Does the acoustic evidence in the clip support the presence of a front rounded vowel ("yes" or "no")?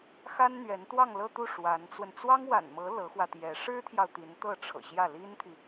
no